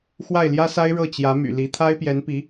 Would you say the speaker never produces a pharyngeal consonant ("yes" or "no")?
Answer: yes